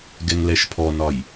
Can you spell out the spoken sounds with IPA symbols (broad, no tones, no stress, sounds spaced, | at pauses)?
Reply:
ɡ ɛ ŋ l ɛ ʃ pʰ ɔ n ɒ j